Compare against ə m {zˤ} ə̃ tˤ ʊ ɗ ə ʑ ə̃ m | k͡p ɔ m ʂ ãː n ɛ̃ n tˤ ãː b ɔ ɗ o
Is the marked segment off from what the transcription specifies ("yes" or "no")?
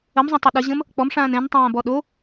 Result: no